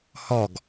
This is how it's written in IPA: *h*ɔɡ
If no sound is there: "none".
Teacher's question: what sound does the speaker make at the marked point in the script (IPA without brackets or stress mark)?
h